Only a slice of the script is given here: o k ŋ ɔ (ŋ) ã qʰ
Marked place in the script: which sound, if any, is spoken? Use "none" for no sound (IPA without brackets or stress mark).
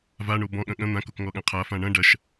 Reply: ɠ